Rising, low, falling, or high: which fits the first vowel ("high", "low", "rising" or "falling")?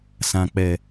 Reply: low